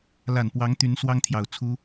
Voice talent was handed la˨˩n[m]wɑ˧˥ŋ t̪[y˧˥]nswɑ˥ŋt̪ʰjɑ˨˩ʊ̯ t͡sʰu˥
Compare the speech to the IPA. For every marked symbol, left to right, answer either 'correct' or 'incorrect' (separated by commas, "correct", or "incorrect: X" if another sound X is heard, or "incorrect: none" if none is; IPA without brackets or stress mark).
incorrect: p, correct